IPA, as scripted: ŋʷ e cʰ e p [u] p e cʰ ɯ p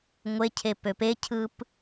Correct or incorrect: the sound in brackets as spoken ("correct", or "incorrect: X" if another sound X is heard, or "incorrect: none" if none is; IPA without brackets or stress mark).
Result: incorrect: ø